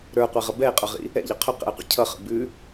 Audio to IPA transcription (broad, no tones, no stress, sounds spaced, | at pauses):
ɾ ə˞ qʷ ɛ ʁ ʌ b ɛ e̯ qʼ ə˞ ʁ ḭ | ɛ̰ ʎ ə qʰ ʏ q ɛ̰ e̯ qʷ ḭ cʰ ʌ χ ə̰ b ʉ